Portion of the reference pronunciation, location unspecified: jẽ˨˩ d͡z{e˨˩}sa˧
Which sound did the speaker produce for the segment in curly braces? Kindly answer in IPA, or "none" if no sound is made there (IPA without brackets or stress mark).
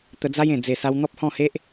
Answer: e˨˩